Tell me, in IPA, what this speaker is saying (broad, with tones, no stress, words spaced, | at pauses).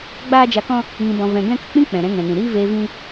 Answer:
ɡ͡baː˦d͡ʒa˧kɔ̃˦ | ŋĩ˧bɔ̃˧ vɛ̃˧ ɡɛ̃˦ kə˨k͡pĩ˦ k͡pɛ̃˨ɾɛ̃˧ ŋɛ̃˨nĩ˨ ɾiː˦veː˧ vĩ˦